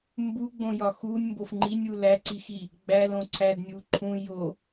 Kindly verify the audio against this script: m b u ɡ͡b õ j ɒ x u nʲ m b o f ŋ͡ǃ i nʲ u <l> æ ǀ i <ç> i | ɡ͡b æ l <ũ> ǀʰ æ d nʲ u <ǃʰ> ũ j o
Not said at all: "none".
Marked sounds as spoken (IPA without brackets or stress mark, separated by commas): l, x, õ, ǃʰ